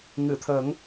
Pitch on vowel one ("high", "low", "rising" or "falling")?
low